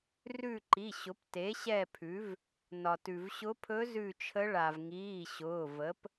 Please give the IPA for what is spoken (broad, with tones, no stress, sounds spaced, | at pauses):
r ʉ˦˨ ǃ i˩˧˩ ɕ ʊ˩˥ p t e˩˥ ɕ ɛ˦˨ pʰ ʉ˩˥ v | n ɒ˩ t ʉ˩ v ɕ ʊ˧˥ pʰ ɵ˧˥ z ʉ˦˨ t͡ʃʰ ə˧˥ ɭ a˩ v ŋ iː˩˧˩ ɕ ʊː˩˧˩ v ə˩˥ p